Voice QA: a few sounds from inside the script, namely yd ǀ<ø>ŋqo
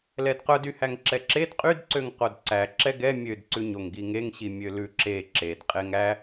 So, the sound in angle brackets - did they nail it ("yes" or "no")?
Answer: yes